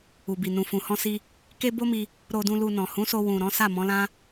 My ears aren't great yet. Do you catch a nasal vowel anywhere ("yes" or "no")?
yes